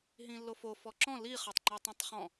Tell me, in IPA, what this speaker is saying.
ɦ ĩ lː o f o f ɔ ǁ ɔ̃ l i χ œ tˤ ŋ͡ǃ œ tˤ ɐ̃ tˤ χ ɔ̃

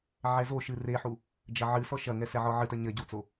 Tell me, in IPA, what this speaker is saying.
ʕ ɛ z o ʃ ɨ r e ħ u | d͡ʒ ɐ ʕ ɨ s ɔ ʃ ɐ ŋ ɛ s ɛ ʕ ɔ ʕ ɨ t ɐ ɲ ɐ ɟ u t͡s o

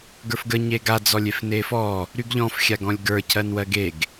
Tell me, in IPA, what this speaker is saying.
ɡ ə˞ f ɡ ə ɲ e ɡ a d͡z ɔ lʲ e f n e f ɔ | ɾ y ɡ ʎ ɔ̃ f xʲ a ɡ ɔ̃ lʲ ɡ ə˞ cʰ ɜ n w ɜ ɡ e ɡ

